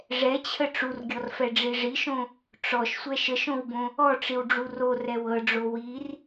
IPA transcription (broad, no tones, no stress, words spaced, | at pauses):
ʐɛt͡ɕʰə ʈ͡ʂurɡʲɔrfɛɖ͡ʐi ʐiʃõ | ʈ͡ʂɔʃsʷɛ ʃəʃõwbõ | ɔʈ͡ʂiwɖ͡ʐu rorɛw ɤɖ͡ʐo wir